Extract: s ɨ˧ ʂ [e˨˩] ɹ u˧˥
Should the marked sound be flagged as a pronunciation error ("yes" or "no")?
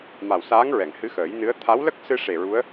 no